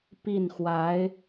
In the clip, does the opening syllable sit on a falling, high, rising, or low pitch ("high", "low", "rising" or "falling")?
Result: falling